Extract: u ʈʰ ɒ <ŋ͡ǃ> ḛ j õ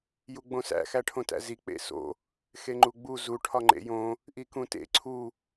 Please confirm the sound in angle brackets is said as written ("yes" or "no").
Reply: yes